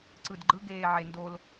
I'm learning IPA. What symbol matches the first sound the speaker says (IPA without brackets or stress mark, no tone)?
ǀ